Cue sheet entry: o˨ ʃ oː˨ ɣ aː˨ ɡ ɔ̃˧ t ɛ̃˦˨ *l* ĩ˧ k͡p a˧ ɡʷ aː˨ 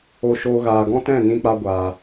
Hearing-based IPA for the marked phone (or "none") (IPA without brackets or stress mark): n